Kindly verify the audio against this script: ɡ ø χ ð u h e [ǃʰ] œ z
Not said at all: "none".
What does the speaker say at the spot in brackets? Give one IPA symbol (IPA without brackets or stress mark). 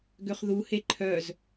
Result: ǃʰ